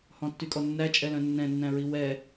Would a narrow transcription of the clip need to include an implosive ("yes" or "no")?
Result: no